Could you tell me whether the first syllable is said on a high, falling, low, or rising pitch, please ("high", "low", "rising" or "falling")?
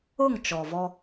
falling